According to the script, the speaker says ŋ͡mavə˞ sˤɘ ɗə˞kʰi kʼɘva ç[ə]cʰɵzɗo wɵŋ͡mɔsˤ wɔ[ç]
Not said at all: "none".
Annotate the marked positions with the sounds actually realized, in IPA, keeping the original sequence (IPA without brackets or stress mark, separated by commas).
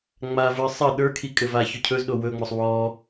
ɵ, none